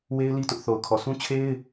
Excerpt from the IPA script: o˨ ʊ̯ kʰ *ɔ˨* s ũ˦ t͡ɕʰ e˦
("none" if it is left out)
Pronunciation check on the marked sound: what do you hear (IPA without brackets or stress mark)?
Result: ɔ˨